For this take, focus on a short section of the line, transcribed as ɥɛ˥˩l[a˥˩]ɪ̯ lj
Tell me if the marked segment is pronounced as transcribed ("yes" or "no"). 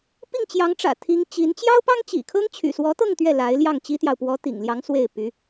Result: no